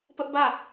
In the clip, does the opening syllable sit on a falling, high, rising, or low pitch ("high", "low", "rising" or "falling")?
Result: high